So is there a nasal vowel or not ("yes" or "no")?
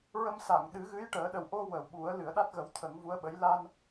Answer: no